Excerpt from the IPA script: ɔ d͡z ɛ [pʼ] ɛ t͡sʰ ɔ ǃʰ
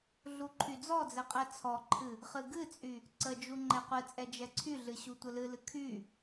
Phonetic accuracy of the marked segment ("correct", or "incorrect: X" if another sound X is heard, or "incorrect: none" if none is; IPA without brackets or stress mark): incorrect: qʼ